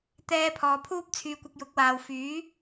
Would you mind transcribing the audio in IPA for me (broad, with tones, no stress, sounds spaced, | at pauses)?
t̪ ɛː˥ pʰ ɔː˧ pʰ uː˥ p̚ t͡sʰ yː˧ kʷ ɪ˧ k̚ j ʊ˨˥ k̚ w aː˨ w f yː˨˥